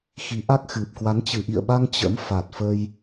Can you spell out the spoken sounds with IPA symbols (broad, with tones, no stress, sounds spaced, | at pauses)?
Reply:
x i˨˦ ʔ a˦˥ k̚ x ɨ˨˩ p̚ k w a˨˦ n t͡ɕ ɨ˧˩ ʔ ḭ˧˨ ə̯ ɓ a˧ ŋ t͡ɕ ə̰˧˥ m f a˨˩ t̚ f ə˧ j